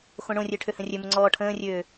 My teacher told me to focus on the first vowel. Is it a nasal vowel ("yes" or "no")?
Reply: yes